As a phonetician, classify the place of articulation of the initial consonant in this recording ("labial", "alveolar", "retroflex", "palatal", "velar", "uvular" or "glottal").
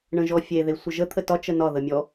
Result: retroflex